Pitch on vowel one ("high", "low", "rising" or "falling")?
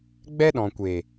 high